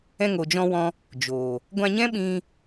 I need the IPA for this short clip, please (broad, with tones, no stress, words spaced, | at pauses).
ɛ̃˧ŋo˨d͡ʒɔ̃˧wɔ̃˧ | d͡ʒoː˨ | ɡʷã˧ɲɛ̃˦ɓĩ˧